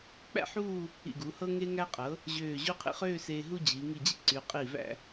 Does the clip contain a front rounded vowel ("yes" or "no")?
yes